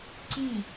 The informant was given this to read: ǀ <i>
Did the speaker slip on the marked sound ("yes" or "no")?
no